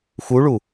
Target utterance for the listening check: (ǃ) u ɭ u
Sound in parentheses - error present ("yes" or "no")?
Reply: yes